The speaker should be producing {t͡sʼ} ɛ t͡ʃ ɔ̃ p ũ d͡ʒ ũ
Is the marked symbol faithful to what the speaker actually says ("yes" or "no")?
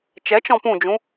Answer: no